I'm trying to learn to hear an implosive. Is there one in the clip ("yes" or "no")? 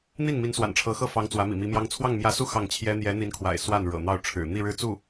no